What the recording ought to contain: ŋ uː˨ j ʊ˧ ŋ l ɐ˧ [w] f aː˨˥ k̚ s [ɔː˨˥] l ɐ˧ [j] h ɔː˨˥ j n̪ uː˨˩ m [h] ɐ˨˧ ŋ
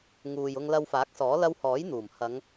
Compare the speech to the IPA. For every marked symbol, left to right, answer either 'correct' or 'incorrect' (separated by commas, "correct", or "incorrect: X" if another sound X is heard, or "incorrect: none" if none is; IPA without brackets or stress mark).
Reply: correct, correct, incorrect: w, correct